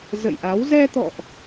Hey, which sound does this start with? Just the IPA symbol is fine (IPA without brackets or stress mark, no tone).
z